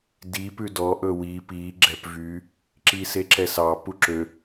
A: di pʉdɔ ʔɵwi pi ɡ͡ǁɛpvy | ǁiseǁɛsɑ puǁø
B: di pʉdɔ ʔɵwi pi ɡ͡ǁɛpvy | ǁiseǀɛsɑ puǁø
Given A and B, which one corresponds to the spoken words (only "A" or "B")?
A